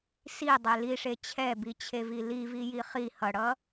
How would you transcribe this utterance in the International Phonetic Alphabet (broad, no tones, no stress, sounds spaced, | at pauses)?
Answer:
s i dˤ e l i ʂ e t͡ɕʰ ɛ b i t͡ɕʰ e v i l i v i j i χ i h ʌ ɽ ʌ